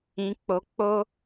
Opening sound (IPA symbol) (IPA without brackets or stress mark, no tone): ĩ